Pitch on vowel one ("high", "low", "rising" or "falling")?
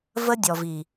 high